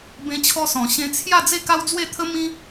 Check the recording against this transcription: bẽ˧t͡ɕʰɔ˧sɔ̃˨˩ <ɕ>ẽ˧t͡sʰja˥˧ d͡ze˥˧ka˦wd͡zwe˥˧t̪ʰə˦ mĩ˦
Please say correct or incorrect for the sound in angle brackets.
correct